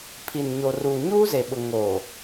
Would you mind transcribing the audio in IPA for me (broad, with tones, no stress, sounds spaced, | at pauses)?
pʰ i˨ n ɲ o˨ r uː˨ ɲ uː˦ z e˨ ɓ ʊ˨ ŋ o˨